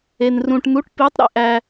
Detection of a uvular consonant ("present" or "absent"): absent